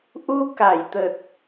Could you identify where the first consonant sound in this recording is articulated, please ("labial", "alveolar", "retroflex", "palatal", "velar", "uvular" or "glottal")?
glottal